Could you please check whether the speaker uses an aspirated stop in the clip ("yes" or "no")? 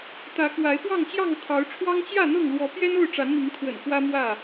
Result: yes